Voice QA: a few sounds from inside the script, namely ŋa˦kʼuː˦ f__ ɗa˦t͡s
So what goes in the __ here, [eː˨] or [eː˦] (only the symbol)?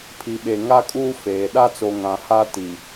eː˨